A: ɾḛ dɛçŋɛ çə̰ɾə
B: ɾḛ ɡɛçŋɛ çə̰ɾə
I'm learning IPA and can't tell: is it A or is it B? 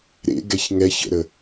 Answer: B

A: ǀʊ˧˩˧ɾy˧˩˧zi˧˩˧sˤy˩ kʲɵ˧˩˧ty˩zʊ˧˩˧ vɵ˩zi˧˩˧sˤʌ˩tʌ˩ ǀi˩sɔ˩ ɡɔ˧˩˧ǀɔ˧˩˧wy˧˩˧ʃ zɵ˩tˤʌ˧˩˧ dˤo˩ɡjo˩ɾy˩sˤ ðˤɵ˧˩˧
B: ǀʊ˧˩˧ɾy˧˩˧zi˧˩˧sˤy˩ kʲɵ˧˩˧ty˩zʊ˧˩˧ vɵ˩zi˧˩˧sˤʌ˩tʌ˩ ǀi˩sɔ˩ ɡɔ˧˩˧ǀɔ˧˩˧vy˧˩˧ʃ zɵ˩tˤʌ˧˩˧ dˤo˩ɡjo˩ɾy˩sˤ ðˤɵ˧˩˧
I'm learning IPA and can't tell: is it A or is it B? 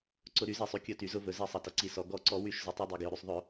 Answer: A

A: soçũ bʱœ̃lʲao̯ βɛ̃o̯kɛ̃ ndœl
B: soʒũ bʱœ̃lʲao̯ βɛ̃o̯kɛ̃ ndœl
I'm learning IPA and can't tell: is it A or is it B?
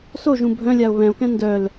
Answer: B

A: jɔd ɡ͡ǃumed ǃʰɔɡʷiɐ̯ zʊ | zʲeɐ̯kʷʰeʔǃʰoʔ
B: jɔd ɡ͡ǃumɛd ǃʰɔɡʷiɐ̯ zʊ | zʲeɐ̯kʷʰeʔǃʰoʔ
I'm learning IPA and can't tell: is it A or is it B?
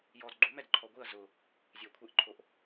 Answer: B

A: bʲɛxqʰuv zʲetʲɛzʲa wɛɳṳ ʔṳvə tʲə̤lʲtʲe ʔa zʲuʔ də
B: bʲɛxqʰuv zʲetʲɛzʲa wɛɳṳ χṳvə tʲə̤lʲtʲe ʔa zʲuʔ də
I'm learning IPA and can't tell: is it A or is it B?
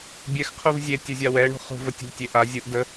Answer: B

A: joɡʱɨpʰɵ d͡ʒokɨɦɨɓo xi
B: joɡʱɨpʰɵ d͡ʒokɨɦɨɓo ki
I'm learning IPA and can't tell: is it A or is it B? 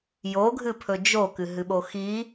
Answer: A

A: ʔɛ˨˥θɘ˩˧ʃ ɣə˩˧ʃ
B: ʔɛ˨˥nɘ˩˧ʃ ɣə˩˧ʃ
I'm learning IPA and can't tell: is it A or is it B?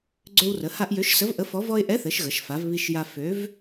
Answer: A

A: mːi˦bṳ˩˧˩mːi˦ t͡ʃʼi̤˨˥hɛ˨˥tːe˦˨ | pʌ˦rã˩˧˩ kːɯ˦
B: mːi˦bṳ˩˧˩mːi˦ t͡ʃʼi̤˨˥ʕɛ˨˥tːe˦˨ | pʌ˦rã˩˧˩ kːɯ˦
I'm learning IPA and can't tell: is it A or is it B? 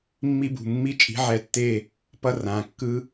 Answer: B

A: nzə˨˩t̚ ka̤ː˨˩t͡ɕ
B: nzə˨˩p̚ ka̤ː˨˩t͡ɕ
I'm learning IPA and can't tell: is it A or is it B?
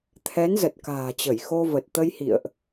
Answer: A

